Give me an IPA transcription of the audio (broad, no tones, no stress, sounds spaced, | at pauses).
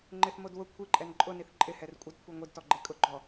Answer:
ŋ͡ǃ ɪ θ m o d w ʊ kʷʰ i ǃʼ ɛ n ǃʼ ʊ n i θ ǃʼ ɪ h ɛ r kʷʼ ɪ d kʷʰ ɛ ŋʷ i d t ɔ ɡ͡ǃ e kʼ ʊ ɡ͡ǃ ɔ